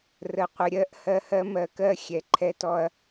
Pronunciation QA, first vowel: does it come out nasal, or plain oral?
oral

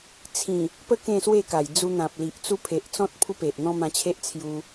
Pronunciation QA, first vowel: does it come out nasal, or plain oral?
nasal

